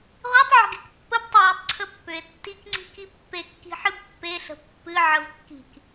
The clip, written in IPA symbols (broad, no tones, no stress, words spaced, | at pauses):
ʁʷitˤʕə̤ɡek pːəb tˤəjʏtˤ ǀʰəpːʏe̯ tːikŋ͡ǀi̤ki pːe kːi̤ħɨbpːeɬə̤ pːɨ ʕəvkːi̤k